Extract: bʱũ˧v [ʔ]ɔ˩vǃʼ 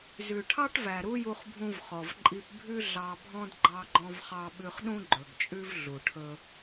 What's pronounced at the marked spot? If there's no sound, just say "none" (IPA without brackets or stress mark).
χ